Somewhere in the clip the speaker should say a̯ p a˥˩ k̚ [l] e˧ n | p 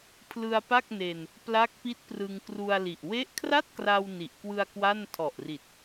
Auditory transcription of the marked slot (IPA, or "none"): n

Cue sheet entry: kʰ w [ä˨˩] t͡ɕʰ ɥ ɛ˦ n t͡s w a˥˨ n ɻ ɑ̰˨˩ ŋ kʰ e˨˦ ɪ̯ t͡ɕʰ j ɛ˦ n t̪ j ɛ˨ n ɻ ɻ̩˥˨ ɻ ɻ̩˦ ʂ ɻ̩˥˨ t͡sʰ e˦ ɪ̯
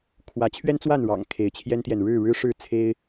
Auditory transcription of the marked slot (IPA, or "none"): ä˨˦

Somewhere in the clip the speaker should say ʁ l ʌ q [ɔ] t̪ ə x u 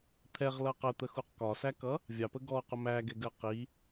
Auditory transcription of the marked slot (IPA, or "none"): ə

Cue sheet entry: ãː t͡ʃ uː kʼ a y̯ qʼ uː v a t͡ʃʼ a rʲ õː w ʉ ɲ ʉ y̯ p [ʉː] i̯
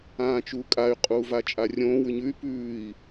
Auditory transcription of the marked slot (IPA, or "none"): ʉː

